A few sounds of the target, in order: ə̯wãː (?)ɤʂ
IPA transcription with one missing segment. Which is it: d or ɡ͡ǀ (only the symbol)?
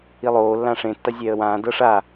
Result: d